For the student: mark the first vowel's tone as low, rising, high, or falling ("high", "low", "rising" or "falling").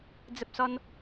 high